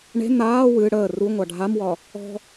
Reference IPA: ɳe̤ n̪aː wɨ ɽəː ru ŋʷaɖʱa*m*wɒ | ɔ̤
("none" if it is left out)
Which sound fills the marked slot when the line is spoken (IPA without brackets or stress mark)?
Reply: m